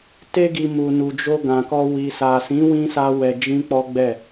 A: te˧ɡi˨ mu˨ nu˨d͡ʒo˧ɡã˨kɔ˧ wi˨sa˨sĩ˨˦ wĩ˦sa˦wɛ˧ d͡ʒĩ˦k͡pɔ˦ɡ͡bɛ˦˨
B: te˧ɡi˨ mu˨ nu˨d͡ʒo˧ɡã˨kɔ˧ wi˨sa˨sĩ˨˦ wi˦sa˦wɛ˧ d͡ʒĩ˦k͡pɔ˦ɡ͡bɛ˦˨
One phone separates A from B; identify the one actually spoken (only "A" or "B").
A